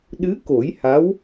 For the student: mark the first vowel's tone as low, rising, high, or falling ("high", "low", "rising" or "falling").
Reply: rising